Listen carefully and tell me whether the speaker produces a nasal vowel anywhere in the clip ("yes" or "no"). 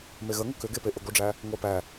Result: no